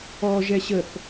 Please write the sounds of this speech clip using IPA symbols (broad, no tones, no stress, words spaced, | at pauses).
ɔ ʒɛɕəθ